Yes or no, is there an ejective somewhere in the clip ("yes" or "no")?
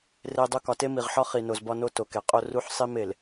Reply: yes